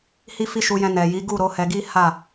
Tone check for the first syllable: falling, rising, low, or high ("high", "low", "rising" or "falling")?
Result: high